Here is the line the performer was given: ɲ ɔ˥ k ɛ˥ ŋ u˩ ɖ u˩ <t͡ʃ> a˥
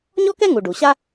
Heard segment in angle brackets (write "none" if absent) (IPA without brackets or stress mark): ɕ